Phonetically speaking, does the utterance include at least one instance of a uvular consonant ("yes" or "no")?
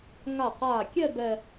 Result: yes